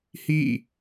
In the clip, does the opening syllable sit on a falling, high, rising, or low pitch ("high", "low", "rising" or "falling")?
falling